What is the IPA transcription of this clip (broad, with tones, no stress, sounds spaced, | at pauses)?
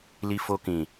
l i˧ f o˧ k ĩ˨